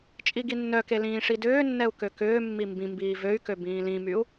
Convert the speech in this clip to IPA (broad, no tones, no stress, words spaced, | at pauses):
t͡ʃʼiɡinːœke lĩːʂidʏːnːɛu̯ køkʏːmːi mbĩ mbiːvøy̯kø bĩːlĩmyu̯